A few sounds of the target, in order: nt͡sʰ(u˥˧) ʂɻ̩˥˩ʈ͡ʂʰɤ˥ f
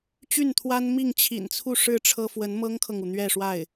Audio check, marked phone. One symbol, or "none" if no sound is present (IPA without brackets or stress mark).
u˥˧